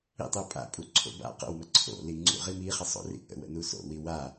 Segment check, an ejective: present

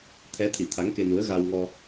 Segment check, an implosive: absent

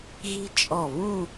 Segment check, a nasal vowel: present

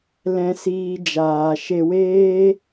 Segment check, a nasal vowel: present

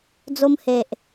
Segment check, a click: absent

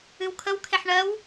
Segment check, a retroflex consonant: present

